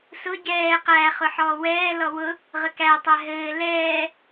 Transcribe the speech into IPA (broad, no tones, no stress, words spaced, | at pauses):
sʊ ɟɛː qæ χʊħɔːwɛːlɔ wʊ | ʁəkætˤæ ɦɘː lɛː